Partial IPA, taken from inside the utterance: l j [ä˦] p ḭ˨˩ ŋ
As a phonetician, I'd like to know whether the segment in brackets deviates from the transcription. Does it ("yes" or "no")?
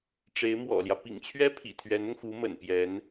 no